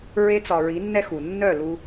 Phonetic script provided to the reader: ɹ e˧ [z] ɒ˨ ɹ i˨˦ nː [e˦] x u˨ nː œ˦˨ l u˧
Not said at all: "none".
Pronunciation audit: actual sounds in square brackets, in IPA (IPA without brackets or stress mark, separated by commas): t͡s, ɛ˦